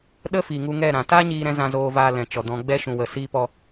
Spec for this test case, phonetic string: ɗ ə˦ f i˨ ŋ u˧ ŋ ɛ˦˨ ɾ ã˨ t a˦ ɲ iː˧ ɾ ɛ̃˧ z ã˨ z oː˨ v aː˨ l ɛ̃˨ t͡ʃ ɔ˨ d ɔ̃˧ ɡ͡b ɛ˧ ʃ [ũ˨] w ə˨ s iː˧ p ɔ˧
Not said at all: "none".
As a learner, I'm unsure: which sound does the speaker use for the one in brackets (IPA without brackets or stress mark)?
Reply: ũ˨